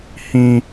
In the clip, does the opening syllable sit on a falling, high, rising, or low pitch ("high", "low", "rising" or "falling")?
high